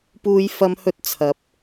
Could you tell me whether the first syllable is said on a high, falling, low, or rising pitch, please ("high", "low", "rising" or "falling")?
high